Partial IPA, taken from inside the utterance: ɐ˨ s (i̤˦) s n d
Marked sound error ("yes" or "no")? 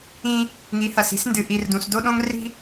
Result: no